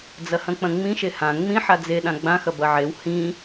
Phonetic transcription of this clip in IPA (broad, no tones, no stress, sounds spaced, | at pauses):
d͡z ɐ h ɐ̃ k͡p ɐ̃ ŋ͡m ĩ ʃ e h ã ŋ͡m ĩ ħ a d͡z e ɗ ã ɡ͡b ã x ɐ b ɐ ʕ e w h ĩ